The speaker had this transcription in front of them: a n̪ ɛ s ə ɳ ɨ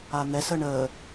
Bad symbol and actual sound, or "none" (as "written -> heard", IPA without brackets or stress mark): ɨ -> ə